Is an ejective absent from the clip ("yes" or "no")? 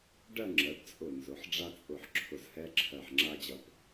no